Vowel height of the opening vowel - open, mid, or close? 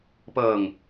mid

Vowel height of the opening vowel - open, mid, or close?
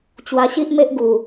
open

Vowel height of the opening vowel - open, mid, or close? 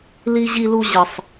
close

